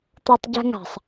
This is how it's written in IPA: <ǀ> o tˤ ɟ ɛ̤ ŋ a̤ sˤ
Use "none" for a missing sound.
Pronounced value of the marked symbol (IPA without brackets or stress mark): t̪